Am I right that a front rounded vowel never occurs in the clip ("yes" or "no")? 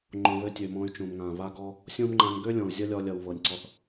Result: no